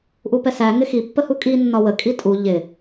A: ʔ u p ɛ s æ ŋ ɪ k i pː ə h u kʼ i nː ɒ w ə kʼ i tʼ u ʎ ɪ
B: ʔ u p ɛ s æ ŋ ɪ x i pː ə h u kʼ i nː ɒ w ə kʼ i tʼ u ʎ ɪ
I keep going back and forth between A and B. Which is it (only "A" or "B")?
B